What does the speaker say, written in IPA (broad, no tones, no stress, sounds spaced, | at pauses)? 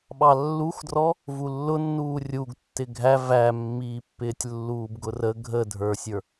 ɓ ɑ lː u x d r ɔ | v u lː ʊ nː uː rʲ u ɡ tː ɪ ɡʱ æ v æ mː iː pː ɪː tʲ lː uː b ɡ ʊ r ə ɡʱ ə dʱ ə˞ sʲ ə˞